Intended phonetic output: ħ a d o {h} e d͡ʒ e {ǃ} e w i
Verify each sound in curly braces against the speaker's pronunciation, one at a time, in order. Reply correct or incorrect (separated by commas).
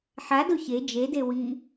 incorrect, incorrect